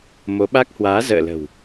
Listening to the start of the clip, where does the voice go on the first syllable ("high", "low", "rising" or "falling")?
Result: rising